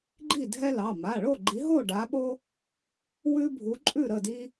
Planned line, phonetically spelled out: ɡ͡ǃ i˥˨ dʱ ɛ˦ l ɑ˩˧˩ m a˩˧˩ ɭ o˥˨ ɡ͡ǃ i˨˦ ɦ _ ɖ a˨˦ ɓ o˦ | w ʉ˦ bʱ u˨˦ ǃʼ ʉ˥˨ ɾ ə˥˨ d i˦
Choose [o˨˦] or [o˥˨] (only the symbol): o˥˨